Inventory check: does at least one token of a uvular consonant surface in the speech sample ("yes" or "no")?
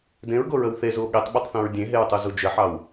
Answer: no